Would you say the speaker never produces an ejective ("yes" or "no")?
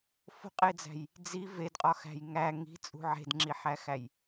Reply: no